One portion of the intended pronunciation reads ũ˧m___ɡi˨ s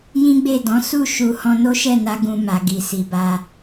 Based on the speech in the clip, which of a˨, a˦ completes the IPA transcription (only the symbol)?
a˨